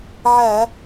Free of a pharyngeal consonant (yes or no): no